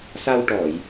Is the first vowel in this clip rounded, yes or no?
no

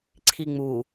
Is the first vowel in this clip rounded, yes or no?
no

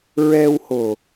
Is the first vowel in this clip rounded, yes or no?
no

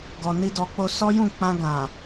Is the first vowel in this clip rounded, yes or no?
yes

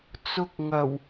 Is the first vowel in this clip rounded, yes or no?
yes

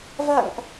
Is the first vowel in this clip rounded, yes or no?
no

